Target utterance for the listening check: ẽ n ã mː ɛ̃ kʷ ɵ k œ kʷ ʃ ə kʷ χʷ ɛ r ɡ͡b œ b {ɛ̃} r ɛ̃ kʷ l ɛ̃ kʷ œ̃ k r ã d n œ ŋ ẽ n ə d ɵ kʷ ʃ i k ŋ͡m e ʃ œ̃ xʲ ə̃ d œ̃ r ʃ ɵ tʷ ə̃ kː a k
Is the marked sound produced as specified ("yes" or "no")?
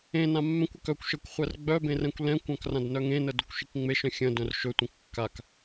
no